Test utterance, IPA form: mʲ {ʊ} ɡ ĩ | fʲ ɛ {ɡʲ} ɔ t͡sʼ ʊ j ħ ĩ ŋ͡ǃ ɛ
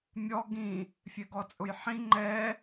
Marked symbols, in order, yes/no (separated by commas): no, no